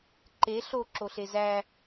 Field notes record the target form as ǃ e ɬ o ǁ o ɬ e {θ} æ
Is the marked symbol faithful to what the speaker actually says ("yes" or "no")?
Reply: no